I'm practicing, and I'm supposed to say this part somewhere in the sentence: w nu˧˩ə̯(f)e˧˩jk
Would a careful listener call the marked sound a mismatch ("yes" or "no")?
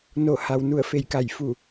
no